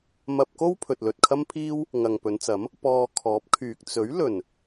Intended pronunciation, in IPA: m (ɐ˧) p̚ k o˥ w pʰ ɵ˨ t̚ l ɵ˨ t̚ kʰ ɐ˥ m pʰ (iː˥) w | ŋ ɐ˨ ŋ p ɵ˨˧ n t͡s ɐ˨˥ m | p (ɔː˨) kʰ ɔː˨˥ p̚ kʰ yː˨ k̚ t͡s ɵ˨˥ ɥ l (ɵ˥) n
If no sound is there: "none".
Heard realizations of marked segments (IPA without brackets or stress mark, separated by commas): ɐ˧, iː˥, ɔː˧, ɵ˨˩